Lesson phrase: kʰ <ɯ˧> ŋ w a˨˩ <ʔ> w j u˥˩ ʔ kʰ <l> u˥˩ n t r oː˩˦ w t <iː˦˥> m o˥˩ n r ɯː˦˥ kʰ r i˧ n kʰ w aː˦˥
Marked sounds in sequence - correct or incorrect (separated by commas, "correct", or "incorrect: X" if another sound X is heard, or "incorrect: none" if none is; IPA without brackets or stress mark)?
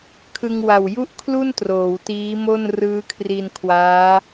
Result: correct, incorrect: none, correct, correct